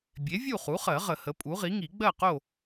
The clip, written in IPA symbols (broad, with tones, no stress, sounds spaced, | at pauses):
bʲ e˩˥ vʲ u˥˨ χ u˩˥ χ ɜ˨˩˦ ʁ ə˨˩˦ h ə˩˥ pʼ u˩˥ ʁ i˩˥ ŋ i˨˩˦ ɡ͡b ɜ˥˨ q o˥˨